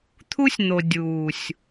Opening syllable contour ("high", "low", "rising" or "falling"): high